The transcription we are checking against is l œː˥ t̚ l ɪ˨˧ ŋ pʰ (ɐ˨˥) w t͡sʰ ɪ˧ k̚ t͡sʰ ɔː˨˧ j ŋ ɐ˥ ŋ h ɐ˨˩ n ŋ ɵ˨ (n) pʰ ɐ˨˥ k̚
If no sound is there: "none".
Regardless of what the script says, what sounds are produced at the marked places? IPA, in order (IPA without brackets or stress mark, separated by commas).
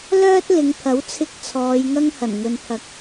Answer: ɐ˨˥, n